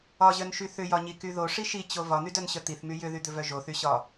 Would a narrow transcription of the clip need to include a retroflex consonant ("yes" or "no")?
yes